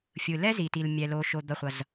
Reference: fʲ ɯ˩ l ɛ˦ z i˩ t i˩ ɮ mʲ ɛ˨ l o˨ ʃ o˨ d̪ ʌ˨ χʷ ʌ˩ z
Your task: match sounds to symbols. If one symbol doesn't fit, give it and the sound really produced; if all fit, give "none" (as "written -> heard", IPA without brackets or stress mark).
ɮ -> l